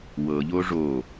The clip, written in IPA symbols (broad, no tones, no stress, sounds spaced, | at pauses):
w ɤ ʎ o ʐ o